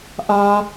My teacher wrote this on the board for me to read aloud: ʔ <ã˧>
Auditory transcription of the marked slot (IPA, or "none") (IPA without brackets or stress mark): a˧